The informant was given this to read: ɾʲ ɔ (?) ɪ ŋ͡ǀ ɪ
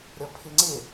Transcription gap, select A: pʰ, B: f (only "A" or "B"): A